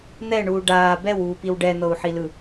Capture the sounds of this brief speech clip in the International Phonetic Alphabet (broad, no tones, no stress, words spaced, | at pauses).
n̪ɛɳuː ɖaː bɛwuːpiw ɖɛn̪ɤu̯ħilɯ